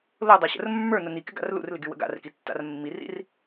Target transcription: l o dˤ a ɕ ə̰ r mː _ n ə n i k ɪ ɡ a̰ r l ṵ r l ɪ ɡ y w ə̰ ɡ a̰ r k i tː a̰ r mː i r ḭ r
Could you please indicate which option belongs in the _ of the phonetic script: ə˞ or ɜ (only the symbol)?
ə˞